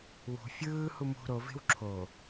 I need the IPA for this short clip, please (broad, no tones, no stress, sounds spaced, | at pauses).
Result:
w ṳ fʲ ɯː h u m ṳ ɾ o v e̤ w ǁʰ o